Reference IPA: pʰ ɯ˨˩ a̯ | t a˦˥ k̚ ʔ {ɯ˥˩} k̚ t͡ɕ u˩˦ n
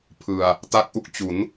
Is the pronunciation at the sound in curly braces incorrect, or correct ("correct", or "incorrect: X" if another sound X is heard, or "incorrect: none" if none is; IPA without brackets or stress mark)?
incorrect: u˥˩